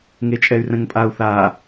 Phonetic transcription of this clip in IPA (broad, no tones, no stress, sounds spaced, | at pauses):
ŋ e t͡ʃʼ ɛ y̯ r ɛ̃ ŋ pʼ a u̯ θ a